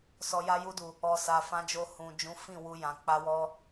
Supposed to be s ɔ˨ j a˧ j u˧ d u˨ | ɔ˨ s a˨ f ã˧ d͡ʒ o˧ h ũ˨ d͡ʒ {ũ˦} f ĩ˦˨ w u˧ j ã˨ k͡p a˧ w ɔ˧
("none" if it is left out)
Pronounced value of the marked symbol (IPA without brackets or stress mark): ũ˨˦